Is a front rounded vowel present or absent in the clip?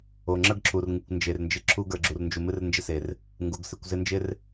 absent